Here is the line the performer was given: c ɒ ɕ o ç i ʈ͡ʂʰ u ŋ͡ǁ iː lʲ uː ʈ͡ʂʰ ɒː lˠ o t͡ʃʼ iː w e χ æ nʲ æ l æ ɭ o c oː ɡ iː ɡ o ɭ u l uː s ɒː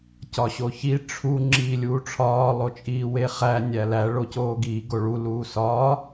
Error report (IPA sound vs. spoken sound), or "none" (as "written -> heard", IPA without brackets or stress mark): none